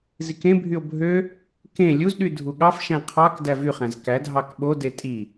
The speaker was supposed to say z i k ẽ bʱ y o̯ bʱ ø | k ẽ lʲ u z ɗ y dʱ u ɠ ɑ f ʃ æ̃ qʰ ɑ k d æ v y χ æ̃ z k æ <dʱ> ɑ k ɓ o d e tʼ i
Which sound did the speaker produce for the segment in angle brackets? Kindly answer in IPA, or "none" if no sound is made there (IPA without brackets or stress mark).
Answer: dʱ